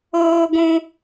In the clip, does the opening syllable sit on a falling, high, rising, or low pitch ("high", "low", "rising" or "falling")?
high